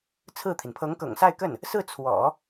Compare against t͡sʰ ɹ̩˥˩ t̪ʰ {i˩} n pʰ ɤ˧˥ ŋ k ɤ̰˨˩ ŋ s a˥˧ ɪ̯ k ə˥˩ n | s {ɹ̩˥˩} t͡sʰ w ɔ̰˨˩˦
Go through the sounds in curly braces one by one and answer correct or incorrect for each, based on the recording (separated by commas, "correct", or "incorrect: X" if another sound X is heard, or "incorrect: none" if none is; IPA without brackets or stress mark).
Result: correct, correct